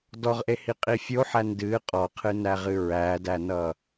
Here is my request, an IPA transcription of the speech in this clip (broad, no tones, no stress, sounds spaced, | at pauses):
d ɔ ʁ ʔ e h i qʼ i fʲ o ħ æ n d ɨ qʼ ɔ qʰ ɨ n æ ʁ ɨ ɹ æ d æ n ʌ